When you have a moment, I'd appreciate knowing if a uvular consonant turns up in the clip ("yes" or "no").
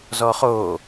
yes